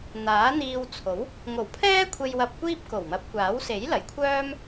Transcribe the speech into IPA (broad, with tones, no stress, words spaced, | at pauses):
n̪aː˨˥n̪iː˧w t͡sʰo˨˥w | ŋo˨˩wpʰɛː˥ kʷʰe˧jwɐ˧p̚kʷiː˥p̚ ko˨˩wmɐ˨˥p̚kʷaː˨˥w se˨˥jlɐ˨˩j kʷʰœː˥m